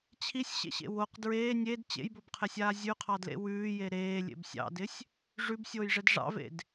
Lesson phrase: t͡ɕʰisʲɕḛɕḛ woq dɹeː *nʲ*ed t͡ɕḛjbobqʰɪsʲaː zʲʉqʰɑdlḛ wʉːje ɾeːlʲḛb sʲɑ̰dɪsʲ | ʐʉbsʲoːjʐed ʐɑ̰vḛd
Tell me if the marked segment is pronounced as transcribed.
yes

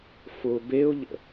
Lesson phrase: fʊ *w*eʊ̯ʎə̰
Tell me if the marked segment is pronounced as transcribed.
no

